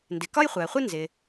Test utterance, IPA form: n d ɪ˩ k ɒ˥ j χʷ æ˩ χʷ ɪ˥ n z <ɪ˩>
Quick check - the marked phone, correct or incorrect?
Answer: correct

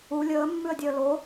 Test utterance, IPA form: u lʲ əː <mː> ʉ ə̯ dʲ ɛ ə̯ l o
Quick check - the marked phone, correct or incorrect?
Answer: correct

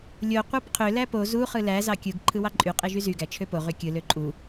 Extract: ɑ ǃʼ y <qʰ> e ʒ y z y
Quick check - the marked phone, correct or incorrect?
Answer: incorrect: qʼ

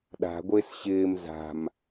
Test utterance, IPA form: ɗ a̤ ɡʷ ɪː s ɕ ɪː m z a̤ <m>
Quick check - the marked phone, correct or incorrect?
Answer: correct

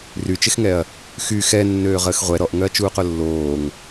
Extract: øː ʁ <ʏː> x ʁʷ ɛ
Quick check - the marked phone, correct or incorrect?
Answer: incorrect: əː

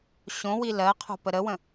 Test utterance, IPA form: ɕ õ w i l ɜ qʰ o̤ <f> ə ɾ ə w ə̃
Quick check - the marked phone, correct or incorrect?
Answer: incorrect: p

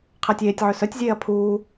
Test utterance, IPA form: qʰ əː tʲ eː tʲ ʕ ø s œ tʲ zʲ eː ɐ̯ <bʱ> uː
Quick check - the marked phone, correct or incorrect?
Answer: incorrect: pʰ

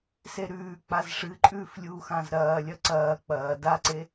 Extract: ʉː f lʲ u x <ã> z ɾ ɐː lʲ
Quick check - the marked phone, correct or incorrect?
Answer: correct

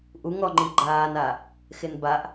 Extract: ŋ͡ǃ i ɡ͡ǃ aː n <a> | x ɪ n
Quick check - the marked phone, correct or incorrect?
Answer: correct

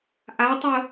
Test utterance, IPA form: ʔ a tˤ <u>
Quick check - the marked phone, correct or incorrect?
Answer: incorrect: ʊ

